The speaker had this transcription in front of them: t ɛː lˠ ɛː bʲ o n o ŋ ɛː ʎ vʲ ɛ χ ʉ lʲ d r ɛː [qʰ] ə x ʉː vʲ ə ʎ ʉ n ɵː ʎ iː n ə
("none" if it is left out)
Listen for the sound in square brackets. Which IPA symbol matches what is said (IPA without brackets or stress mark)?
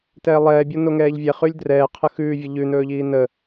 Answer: qʰ